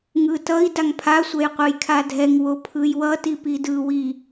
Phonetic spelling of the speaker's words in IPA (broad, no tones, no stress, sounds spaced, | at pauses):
ŋ ɯ t ʌ i̯ d a ŋ pʰ a sʷ ɛ j qʷ ɯ j kʰ a dʱ ɛ ŋ w o pʰ ɯ j w ʌ t i p i d ɯ w i